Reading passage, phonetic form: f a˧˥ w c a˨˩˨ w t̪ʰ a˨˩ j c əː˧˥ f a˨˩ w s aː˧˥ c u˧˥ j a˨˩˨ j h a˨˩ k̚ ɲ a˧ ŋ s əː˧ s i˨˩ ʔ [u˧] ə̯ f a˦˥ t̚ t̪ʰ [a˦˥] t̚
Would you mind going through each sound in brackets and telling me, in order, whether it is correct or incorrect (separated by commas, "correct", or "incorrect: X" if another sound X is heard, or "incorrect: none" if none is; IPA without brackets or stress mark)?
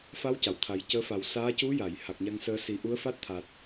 incorrect: u˧˥, incorrect: a˨˩